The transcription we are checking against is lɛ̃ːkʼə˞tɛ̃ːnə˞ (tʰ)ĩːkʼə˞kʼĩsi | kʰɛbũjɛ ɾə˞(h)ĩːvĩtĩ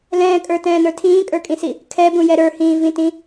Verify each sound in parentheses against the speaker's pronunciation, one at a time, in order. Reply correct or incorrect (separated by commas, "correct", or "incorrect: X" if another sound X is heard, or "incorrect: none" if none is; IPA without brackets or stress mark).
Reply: correct, correct